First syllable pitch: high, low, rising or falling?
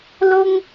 high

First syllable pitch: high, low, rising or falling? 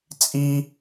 high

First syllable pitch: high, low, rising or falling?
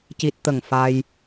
low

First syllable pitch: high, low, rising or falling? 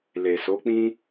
low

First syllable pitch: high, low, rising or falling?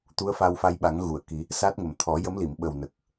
rising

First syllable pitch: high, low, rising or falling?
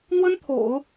high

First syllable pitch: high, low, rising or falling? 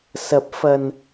rising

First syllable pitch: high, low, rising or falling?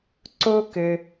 high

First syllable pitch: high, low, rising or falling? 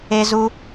high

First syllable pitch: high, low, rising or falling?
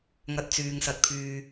low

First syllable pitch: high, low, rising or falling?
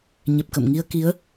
low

